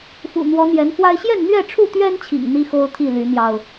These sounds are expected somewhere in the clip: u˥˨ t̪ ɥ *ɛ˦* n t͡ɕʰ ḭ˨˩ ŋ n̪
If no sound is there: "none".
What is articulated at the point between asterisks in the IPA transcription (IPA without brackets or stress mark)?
ɛ˦